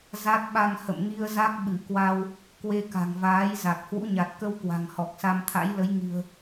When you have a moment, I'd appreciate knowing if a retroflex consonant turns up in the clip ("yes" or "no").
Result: no